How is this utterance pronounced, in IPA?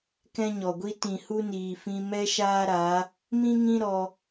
k ɛ̃˦ ɲ ɔ˨ ɡʷ i˦ t ĩ˨ h u˦ n iː˨ f ĩ˧ m ɛ˦ ʃ aː˦ ɾ a˨˦ | m ĩ˦ ŋ ĩ˦ ɾ ɔ˧

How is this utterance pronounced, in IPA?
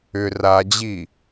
ʏ r a d͡ʑ i

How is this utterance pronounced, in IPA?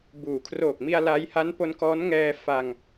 b uː˩˦ kʰ r oː˨˩ k̚ m i˧ a̯ l a˦˥ j h a˦˥ n p o˦˥ n k ɔː˦˥ n ŋ ɛː˧ f a˧ ŋ

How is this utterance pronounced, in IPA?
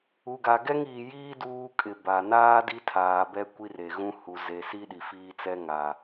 u˨ ɡ a˨ ɡ ɛ˦ ŋ iː˨ j iː˦ d uː˦ kʼ ɪ˨ b a˨ n aː˦ d i˦ tʰ aː˨ b ɛ˦ kʷ i˦ r e˨ ɣ ũ˦ h u˨ z e˨ s i˦ ɗ i˨ f iː˦ t͡s ɛ˦ ŋ a˨

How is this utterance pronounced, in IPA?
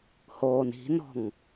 h oː n i̤ n ɔ̤ ŋ

